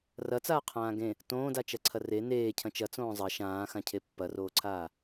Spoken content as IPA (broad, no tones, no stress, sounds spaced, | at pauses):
r ɐ t͡s aː qʰ ãː ɡ ẽ | t õː d a t͡ʃ ɐ ǀʰ ɐ r e n eː cʰ ɐ̃ t͡ʃ ɐ t͡s õː zˤ ɐ ʃ ãː x ã cʰ e pː ɐ r oː ǀʰ aː